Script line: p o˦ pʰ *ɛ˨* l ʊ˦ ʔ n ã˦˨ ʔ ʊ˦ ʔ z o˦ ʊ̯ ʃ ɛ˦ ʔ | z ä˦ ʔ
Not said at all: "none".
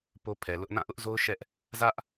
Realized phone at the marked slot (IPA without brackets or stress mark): ɛ˨